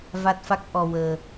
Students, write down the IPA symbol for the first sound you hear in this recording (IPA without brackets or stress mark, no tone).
v